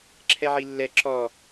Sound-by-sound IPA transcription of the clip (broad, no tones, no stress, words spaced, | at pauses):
ǁʰɛʕilːɛ ǁɔ